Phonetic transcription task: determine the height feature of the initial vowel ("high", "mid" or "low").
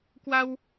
low